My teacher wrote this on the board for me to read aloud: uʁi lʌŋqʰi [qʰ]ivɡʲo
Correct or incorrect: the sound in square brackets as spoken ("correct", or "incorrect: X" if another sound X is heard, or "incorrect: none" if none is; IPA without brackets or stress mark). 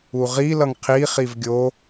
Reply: incorrect: χ